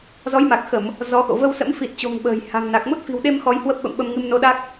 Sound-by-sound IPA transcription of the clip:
zɔ˨˦jma˨˩k̚xə˧˩˨m | zɔ˨˦xo̰˧˨ və˧wsə̰˧˥mfi˨˩t̚t͡ɕo̤˨˩ŋ ɓə̤ː˨˩j ha̤˨˩ŋna˨˩k̚ mo˦˥t̚fi̤˨˩wɗe˧m xɔ˧jhwə˦˥p̚ɓə̰˧˨m ɓə˧mŋɨ˧m no˧ɗa˦˥k̚

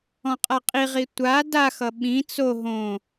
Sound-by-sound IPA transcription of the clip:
ɔ̃qʼaqʼiʁi tʷa daxʌ ɓĩ t͡so ɦõ

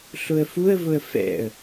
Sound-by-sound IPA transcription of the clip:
ɬʊə̯fuə̯vʊə̯ fɛ̰ə̯

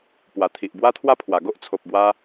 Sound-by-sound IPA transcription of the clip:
pwa˨˩t̪ʰi˨ʔ bwa˦t̪ʰwa˦pʰwa˨˩ ɡo˦ʔt͡sʰo˨p̚ bwa˦

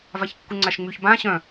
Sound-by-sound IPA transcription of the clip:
vaçkːuŋ͡ǀaʃŋ͡myç bã ɕœ̃

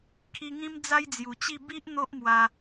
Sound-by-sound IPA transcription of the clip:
kʰi˧ŋĩ˦m d͡za˦jd͡zju˨˩t͡ɕi˥˧ bi˦ʔ n̪o˦ʔmwa˧

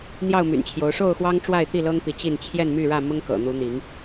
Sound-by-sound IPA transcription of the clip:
n̪jɑ˥˨ʊ̯my̰˨˩nt͡ɕʰjo˨˦ʊ̯ ʂo˥˨ʊ̯xwɑ˦ŋ ʈ͡ʂwa˥˨ɪ̯t̪i˥˨lɤ˦ŋpi˨˦ t͡ɕi˥˨n t͡ɕʰjɛ˥˨nmy˥˨ɻä˥˨ mʊ˦ŋkɤ̰˨˩n̪u˨˦ n̪i˨˦ŋ

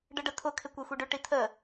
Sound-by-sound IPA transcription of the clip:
ɖəɖətʰʊ kʰɪkʷɛxʷiɖʏ ʈitʰə

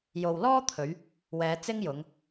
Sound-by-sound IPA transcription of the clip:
jo˨wlɔː˥t̪ʰɵ˨˧ɥ | wɛː˨˧t͡sɪ˥ŋjʊ˨˧ŋ

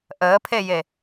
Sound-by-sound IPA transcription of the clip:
ʔəːpʰeje

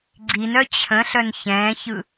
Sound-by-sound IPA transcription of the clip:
ɡ͡ǀinœ t͡ɕʰə̃ɬœn çɛ̃ːçɯ

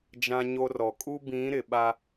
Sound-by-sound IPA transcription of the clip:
d͡ʒã˦ɲo˦rɔ˨ kʼu˦bĩ˨˦ ɾɪ˨ɓa˦

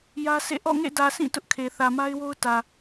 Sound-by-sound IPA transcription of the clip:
jä˦sʰḛ˦˨ ʔɔ̰˦˨ŋḛ˦˨dä˨sʰĩ˦˨ tʊ˦ʔkʰe˨ θä˨ma˦ɪ̯wo˦ʊ̯ tä˨

